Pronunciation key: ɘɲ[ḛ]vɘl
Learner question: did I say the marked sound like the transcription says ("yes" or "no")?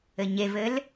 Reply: no